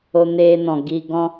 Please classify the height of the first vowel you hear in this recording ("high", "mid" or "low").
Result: mid